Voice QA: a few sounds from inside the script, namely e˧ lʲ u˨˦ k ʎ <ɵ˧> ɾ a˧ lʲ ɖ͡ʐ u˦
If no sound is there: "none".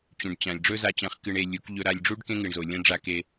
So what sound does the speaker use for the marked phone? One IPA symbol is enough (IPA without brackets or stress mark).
ɵ˧